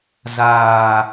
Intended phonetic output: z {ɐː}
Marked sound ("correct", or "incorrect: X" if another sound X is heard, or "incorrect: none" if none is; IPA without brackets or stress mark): incorrect: aː